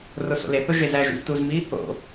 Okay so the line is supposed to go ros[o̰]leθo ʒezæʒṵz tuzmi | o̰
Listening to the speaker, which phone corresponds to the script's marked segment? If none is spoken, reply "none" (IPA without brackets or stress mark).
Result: o̰